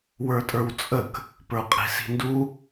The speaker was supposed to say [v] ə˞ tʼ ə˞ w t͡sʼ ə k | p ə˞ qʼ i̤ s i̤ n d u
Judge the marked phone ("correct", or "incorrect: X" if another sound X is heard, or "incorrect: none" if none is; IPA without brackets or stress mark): incorrect: w